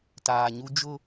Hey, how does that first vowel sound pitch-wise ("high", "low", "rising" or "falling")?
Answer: low